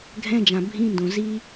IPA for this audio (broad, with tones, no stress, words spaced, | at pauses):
ɡʱɛ̃˧˥˧d͡ʒã˩ bʱĩ˧˥˧ndõ˩ zi˦˥